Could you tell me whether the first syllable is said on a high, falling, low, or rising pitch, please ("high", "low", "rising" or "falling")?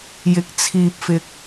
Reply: rising